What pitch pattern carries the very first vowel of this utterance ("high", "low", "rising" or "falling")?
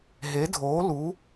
rising